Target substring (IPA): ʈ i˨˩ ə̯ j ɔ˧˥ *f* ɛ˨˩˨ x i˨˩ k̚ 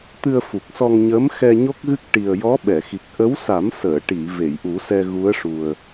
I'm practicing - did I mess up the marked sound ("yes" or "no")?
yes